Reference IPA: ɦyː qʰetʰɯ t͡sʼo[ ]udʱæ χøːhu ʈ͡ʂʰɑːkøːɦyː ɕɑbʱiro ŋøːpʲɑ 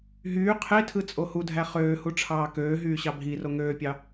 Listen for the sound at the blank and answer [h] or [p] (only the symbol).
h